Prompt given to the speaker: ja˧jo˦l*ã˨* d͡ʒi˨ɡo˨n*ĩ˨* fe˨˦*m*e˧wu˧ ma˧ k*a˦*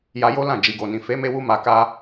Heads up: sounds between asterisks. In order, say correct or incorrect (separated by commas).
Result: incorrect, correct, correct, correct